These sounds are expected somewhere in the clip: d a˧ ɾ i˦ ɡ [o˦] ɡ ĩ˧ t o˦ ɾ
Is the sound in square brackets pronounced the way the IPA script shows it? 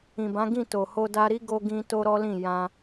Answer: yes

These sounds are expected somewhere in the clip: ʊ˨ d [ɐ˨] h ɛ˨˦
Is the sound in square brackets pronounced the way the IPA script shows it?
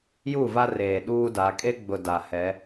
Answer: no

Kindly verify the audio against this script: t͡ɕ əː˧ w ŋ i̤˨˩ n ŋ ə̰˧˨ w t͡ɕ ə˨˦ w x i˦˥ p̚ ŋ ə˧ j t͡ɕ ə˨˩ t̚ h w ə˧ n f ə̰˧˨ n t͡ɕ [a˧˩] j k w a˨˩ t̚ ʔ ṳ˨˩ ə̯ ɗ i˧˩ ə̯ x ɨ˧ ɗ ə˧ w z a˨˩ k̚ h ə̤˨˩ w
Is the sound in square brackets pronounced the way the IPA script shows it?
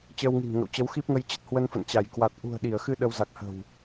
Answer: yes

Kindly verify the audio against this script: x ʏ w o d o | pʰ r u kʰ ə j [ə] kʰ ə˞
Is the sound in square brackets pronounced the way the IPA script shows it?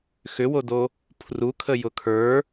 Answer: no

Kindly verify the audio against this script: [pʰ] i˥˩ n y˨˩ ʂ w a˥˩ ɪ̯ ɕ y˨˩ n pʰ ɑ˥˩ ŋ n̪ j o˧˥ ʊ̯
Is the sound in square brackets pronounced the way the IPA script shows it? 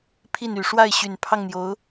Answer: yes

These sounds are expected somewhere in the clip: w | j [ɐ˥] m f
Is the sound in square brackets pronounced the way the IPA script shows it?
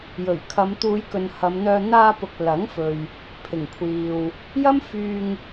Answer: yes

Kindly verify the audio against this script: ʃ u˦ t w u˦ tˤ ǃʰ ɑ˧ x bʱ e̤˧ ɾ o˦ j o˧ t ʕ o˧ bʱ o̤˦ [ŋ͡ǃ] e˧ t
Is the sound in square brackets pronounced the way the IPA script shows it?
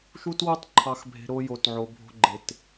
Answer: no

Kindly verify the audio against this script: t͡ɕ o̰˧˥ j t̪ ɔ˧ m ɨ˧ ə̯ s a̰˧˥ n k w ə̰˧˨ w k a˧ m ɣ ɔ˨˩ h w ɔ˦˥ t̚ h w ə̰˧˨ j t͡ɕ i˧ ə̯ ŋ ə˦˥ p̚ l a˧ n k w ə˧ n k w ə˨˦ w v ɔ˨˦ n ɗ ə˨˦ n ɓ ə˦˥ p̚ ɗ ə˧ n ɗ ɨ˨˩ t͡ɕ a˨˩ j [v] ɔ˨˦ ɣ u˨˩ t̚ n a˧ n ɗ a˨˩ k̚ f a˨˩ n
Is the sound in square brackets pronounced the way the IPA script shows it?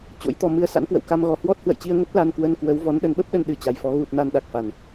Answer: no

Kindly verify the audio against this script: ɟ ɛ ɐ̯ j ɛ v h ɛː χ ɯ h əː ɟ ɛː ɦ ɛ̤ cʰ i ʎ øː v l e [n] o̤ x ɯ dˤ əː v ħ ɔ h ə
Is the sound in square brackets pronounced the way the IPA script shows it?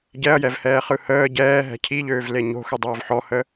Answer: no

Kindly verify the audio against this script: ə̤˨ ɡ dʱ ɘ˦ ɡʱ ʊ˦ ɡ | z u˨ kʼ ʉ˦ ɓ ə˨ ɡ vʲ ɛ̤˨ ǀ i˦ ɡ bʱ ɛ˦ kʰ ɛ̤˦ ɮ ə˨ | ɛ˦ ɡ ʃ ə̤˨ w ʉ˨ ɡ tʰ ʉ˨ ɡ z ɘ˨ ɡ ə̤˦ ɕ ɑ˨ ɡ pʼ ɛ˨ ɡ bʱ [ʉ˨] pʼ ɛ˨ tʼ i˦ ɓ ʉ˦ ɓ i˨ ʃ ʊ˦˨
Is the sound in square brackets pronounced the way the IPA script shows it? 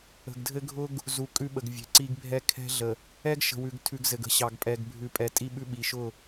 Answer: yes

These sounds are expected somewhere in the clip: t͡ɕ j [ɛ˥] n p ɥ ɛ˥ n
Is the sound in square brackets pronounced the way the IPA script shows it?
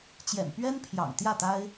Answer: no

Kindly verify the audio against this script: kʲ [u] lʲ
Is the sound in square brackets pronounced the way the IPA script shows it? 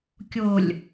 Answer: no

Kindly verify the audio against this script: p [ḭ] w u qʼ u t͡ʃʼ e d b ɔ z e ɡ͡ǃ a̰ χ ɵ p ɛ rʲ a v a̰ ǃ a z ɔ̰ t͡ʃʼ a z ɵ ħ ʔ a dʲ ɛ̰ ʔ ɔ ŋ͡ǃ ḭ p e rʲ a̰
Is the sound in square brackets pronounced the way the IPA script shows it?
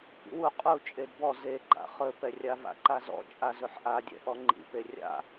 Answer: yes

